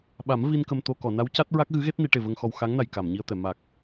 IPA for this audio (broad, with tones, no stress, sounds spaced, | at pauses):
ɓ a˨˩˦ m v i˧ n k ə˧ m t̪ o˧ k ɔ˨˩˨ n a˧˥ w c a˦˥ t̚ ɹ a˦˥ k̚ ɣ ɨ˧˥ ɣ e˦˥ t̚ n i˨˩˦ ʈ e˨˩ v ə˧ ŋ x ɔ˧ w x a˧˥ ŋ n a˨˩ j k a˨˩˨ m ɲ i˧ ə̯ t̪ ɛ˨˩˨ m a˨˩ k̚